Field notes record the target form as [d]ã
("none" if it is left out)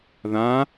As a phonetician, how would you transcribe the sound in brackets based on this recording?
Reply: ð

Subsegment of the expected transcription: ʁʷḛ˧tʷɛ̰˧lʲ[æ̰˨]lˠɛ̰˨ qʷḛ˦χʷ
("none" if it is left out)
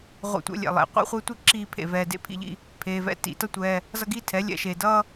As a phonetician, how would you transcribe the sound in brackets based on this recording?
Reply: ɛ̰˨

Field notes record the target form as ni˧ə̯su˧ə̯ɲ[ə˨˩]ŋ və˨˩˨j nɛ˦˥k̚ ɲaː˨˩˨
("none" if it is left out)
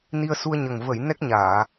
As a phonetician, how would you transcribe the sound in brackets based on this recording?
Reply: ə˨˩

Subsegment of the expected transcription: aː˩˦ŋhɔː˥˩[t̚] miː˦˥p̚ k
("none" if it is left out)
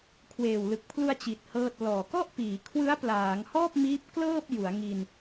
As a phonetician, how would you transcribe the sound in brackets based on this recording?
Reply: p̚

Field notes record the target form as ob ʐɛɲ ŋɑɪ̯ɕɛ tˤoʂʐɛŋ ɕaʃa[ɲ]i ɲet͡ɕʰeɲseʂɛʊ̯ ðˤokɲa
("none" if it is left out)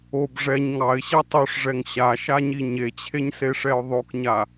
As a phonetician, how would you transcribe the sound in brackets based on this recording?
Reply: ɲ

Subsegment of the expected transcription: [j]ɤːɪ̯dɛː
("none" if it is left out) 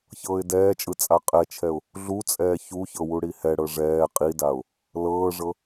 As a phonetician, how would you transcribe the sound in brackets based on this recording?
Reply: ç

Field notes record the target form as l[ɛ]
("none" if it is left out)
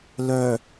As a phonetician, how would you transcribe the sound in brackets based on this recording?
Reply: œ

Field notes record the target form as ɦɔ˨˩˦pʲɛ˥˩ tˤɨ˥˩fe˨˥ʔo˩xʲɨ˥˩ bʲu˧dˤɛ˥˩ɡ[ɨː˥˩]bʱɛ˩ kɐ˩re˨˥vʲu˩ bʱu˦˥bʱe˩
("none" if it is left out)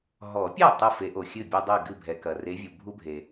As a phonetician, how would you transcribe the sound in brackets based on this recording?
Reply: ɨ˥˩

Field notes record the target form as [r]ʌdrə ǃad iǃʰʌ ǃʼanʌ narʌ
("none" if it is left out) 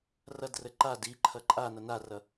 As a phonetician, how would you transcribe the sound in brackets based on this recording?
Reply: r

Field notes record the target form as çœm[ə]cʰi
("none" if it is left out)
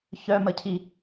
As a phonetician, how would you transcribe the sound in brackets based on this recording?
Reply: ə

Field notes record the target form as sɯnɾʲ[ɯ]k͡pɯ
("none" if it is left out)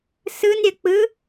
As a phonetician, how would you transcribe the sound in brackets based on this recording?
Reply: ə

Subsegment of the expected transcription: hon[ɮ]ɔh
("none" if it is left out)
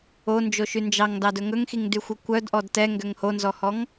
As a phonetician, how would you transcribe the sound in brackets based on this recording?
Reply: z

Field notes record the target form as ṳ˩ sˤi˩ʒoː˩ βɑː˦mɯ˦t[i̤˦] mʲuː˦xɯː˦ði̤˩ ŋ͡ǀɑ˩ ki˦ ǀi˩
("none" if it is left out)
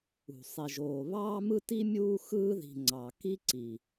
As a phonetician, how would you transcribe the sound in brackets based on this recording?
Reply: i˦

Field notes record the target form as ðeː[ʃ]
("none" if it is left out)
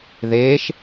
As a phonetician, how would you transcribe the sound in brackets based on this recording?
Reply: ʃ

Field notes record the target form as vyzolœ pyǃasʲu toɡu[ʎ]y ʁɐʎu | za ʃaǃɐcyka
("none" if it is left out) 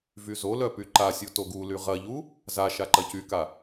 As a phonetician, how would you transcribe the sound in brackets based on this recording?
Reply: l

